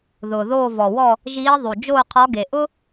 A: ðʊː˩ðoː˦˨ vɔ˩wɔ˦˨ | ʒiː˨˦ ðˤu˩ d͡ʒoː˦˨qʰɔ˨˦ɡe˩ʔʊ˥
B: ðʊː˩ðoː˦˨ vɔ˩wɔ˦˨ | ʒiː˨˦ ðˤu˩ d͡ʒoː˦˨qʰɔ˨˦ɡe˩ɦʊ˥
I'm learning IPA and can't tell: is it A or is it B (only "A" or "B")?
A